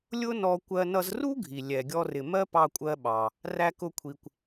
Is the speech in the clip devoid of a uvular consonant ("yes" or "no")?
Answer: yes